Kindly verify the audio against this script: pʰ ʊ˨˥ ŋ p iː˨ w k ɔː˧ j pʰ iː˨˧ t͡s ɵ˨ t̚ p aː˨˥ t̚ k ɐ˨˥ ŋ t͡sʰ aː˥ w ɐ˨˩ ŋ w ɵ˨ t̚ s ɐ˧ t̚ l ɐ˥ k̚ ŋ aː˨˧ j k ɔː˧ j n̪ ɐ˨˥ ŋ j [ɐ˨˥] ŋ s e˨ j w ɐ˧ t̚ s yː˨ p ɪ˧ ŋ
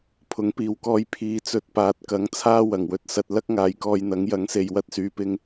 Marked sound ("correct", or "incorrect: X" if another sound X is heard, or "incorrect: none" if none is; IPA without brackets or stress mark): correct